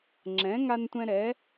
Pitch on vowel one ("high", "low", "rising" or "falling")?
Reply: rising